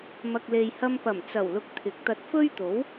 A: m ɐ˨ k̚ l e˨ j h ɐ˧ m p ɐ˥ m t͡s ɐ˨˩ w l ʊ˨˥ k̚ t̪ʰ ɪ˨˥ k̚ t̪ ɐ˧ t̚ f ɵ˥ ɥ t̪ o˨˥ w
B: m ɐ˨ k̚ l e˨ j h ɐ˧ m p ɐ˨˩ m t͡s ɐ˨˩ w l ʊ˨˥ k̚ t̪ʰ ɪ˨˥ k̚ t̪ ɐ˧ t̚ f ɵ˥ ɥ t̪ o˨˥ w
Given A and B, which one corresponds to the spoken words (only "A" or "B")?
B